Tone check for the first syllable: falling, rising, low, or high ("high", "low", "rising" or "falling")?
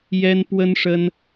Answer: high